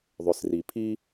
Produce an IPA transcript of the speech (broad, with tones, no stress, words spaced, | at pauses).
ðˤʏ˩sri˩pʰi˥